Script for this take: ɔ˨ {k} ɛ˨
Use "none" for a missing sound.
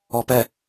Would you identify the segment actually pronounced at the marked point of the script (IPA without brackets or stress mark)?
p